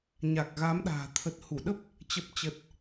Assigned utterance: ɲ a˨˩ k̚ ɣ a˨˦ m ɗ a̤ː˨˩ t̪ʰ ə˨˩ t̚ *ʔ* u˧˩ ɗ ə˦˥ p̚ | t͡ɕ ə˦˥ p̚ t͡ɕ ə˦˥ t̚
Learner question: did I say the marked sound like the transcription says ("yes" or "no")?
no